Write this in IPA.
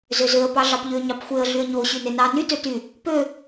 z ø z ø ə̯ p ɑ ɮ ɑ p ʎ ø ɲ ɑ p xʷ e ə̯ ɮ y ə̯ ɲ o ɕ y n e n ɑ n y t ø t y | p ø

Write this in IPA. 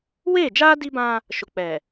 w eː˦˨ d͡ʒ aː˦ d i˦ b ã˦ | ʃ ʊ˨ k͡p ɛ˨

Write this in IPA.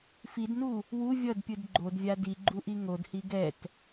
f i d n u | w u vʲ ʌ d pʲ ɯ d ɡ͡ǃ o d vʲ a d i ɡ͡ǃ u ʔ i ŋ o d h i ɡ ɛ t

